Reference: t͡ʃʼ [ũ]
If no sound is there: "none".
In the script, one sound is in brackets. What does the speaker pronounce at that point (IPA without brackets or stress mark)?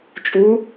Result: u